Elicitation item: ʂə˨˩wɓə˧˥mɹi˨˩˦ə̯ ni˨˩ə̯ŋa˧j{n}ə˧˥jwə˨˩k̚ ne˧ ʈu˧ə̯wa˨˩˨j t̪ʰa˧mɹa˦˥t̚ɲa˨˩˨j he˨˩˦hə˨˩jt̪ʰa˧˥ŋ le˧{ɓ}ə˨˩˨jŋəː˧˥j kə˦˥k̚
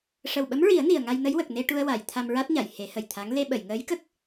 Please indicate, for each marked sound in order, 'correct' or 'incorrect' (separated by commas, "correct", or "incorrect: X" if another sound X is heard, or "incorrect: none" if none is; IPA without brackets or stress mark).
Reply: correct, correct